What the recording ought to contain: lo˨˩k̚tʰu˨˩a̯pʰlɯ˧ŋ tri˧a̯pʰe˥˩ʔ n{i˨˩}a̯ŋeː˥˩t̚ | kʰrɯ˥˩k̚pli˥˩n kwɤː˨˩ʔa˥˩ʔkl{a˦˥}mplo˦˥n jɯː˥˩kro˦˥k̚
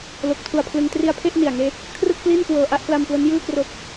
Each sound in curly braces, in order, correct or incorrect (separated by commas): correct, incorrect